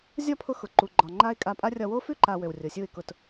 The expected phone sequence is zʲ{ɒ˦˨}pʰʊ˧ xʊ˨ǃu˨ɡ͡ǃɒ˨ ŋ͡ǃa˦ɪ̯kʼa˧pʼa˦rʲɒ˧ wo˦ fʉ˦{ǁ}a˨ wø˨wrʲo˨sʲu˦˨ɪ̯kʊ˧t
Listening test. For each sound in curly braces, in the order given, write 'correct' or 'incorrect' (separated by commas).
correct, incorrect